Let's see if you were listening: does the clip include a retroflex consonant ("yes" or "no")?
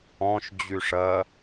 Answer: yes